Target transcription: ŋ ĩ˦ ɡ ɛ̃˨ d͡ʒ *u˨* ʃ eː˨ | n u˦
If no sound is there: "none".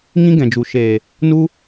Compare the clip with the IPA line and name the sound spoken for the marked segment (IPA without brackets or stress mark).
u˨